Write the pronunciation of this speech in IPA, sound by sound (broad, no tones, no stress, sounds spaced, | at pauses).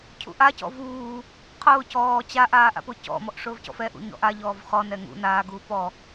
cʰ ṵ ʔ a c ɔ̰ v uː | qʰ ʊː c ɔː t͡ɕ a ʔ aː ʔ a̰ p ʊ c ɔ̰ m ɔ ʔ ʂ ʊː v c ɔ̰ f ɛ ʔ ṵ ɲ ɔ̰ ʔ a ʎ ɔː v χ ɔ n ɛ ŋ ṵ n aː ɡ uː p ɔ